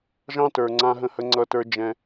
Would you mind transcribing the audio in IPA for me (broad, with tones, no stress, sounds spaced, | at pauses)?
ʒ ɑ̃˦ t ə˞˨ ŋ͡ǀ ã˦ ɦ ə̃˦ h ə˦ ŋ͡ǀ ʌ˦ t ə˞˦ d͡ʒ ɛ̃˦